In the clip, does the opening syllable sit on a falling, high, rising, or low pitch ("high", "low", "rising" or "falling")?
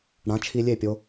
rising